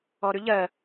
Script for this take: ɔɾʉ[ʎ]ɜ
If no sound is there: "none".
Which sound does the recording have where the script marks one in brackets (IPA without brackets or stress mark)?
ʎ